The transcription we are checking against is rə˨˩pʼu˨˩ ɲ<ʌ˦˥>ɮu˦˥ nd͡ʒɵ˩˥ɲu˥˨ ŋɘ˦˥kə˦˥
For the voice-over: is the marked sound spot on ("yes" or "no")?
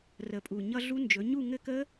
yes